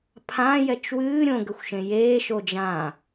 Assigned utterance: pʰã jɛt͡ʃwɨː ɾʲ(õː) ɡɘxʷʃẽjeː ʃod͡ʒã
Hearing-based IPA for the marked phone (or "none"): õ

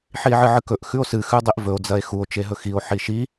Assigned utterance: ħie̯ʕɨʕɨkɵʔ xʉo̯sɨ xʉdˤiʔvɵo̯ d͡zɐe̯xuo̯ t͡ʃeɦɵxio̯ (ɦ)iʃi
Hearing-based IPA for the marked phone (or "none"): ħ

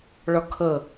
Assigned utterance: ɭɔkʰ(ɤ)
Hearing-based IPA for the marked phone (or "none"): ɤ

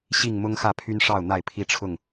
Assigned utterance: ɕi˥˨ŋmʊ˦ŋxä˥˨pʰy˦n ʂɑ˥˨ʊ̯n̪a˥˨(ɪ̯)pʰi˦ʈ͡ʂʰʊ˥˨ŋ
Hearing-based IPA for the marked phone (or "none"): ɪ̯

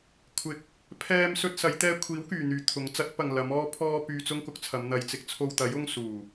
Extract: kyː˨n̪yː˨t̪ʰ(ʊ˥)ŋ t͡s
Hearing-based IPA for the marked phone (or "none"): ʊ˨˥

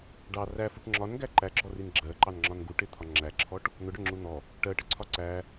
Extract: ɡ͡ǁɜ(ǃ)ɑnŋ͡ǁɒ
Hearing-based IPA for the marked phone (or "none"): ǃ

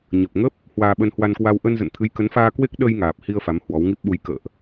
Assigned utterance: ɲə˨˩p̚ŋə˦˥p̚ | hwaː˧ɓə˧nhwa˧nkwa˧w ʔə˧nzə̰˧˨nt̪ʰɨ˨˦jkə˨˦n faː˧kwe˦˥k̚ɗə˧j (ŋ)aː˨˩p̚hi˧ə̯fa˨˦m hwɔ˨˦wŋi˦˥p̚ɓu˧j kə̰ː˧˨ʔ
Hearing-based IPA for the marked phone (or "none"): ŋ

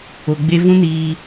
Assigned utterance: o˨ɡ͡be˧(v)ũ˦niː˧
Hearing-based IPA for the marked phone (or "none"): v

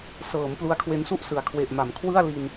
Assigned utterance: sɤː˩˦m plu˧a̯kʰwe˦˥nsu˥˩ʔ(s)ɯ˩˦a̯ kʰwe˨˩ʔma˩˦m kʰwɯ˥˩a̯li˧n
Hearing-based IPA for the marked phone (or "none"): s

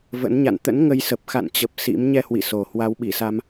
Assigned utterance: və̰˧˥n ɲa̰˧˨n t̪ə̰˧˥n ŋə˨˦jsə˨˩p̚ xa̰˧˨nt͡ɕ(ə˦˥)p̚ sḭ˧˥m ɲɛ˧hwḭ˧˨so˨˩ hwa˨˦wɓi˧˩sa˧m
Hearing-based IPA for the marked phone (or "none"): ə˨˩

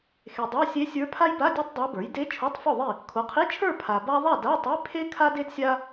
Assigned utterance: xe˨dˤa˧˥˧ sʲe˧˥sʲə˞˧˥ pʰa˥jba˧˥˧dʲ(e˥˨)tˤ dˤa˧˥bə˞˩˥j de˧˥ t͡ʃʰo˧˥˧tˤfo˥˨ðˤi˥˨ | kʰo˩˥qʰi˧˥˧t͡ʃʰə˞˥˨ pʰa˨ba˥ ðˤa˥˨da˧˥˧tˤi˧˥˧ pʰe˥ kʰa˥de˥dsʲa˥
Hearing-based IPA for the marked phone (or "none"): e˥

